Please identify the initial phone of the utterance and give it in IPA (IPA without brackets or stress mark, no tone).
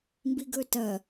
m